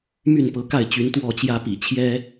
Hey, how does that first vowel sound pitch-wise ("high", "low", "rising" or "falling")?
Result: falling